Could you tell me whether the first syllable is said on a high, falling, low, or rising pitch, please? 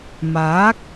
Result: rising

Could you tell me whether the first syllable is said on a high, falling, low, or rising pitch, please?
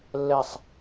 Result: falling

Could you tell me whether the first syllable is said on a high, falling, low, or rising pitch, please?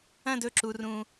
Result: falling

